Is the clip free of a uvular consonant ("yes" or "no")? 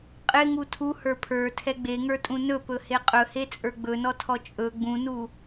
no